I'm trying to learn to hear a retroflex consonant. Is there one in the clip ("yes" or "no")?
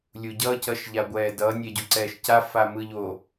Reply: no